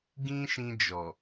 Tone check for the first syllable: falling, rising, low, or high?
high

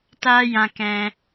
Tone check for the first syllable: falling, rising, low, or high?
high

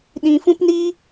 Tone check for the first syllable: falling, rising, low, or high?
low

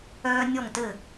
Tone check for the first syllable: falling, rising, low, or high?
high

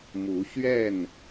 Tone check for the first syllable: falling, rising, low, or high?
rising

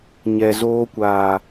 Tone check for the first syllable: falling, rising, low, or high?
low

